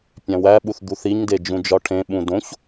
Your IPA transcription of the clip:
pʲ æ̃ w æ ɓ u θ d̪ u θ i ɲ d e d͡ʒ ũ d͡ʒ ɒ ʈʰ ẽ ɓ ũ d õ ç

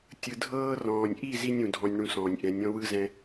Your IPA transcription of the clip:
tʲ ɯ˨ dʱ ɤː˧ r ɔ̃ː˨ nʲ ʔ i˦˨ z i˦ nʲ ũ˨ dʱ ɔ̃˧ nʲ ɳ ũ˧ s ɔ̃ː˨ nʲ ʔ ɛ̃˨˦ nʲ ɔ̃˦ w ɯ˦ z ɛ̃˧

